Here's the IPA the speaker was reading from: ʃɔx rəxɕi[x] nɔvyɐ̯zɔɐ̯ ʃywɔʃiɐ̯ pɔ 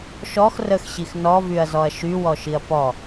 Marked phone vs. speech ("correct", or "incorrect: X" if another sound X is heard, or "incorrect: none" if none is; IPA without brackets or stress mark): correct